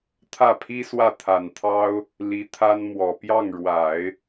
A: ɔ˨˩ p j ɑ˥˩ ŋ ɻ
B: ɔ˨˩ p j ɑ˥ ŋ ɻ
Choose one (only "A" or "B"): A